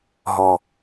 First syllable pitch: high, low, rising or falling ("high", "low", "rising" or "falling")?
low